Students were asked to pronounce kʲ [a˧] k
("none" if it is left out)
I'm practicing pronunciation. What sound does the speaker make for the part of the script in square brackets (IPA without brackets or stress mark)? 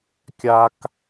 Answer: a˧